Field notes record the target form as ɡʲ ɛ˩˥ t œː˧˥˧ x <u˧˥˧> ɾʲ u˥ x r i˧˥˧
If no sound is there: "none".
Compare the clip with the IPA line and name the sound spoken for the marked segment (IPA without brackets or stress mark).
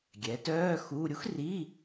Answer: u˧˥˧